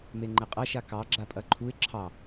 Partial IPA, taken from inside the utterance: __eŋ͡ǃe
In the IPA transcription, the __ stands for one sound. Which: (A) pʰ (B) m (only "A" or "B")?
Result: B